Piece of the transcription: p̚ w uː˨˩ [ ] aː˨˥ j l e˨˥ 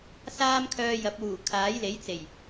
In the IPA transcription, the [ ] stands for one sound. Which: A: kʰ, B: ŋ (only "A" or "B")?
A